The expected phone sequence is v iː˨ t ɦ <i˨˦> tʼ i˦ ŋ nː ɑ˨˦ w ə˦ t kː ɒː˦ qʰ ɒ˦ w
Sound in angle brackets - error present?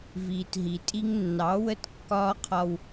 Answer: yes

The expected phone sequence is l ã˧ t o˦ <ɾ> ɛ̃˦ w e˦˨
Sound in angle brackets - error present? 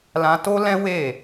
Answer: yes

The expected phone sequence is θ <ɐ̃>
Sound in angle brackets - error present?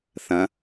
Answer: no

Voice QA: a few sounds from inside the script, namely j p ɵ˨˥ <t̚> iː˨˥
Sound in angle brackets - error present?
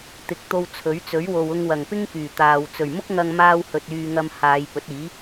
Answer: no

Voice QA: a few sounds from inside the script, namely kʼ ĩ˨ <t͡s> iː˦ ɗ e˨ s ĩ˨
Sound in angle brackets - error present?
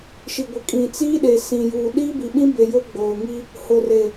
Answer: no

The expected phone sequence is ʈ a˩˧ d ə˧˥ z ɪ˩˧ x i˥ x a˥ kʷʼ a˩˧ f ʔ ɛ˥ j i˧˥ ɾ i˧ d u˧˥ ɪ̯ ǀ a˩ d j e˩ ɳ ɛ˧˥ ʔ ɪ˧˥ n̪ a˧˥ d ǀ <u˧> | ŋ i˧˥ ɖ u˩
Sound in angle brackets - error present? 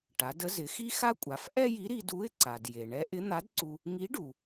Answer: no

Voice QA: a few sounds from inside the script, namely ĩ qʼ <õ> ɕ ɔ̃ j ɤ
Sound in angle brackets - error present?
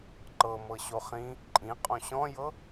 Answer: no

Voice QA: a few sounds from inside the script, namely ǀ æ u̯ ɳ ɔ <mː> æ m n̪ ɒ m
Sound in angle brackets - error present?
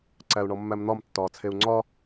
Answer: no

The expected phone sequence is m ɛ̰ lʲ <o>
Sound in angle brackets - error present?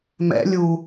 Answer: yes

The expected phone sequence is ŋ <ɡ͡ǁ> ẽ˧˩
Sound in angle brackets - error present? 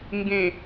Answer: yes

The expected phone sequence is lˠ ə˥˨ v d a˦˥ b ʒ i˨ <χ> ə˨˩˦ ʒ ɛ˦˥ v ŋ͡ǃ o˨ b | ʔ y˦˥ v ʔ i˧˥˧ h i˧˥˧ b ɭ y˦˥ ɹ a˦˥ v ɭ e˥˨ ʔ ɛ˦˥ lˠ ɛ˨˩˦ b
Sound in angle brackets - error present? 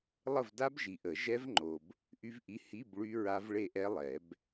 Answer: yes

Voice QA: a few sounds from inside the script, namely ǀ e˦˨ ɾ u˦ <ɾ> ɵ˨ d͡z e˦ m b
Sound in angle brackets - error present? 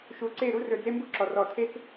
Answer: yes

